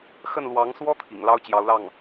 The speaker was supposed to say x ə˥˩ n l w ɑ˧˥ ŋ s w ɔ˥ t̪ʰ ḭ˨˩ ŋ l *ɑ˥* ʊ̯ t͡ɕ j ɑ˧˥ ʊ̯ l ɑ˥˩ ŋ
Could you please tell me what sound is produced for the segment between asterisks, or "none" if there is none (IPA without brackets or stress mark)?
ɑ˥